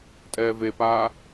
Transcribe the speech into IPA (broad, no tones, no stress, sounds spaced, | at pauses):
tʼ ɛː v e p aː